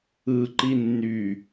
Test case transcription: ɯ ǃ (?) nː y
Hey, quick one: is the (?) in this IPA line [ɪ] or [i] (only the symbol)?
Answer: i